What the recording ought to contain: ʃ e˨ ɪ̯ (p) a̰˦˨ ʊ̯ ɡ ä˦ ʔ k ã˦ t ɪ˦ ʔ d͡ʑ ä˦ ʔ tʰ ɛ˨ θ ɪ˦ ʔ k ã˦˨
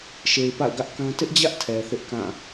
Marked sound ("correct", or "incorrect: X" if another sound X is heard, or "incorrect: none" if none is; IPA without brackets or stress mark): correct